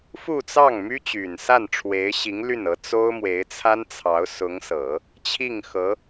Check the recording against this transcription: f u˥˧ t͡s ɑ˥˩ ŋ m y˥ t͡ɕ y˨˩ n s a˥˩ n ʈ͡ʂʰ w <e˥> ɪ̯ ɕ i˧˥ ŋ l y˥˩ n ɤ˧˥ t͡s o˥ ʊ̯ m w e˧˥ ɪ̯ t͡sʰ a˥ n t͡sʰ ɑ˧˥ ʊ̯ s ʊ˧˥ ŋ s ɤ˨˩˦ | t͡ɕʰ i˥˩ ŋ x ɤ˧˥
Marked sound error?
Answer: yes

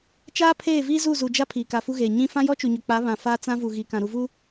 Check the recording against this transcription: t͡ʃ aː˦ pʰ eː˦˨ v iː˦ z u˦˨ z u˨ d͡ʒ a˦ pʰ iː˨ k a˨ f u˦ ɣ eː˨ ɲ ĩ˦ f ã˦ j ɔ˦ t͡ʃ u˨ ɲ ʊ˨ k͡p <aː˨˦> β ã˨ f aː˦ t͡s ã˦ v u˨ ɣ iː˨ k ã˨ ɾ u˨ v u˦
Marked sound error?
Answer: yes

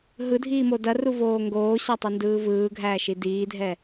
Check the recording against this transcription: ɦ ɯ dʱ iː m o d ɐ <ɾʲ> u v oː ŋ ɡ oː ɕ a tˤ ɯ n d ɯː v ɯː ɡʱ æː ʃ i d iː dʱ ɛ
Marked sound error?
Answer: yes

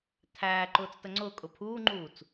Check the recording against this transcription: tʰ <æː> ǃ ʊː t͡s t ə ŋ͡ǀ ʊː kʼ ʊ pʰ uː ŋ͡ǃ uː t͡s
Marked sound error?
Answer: no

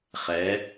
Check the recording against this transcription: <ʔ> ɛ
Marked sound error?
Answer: yes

